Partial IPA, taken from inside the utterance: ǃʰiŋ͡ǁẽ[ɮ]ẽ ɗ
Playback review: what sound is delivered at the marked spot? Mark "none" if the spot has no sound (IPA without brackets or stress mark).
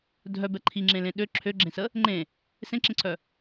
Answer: l